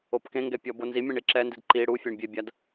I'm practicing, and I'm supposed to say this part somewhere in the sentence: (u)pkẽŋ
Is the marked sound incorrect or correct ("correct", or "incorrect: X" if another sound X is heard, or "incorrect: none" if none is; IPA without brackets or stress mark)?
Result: incorrect: o